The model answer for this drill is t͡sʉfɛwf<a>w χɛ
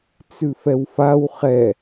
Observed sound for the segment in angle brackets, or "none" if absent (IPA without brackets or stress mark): a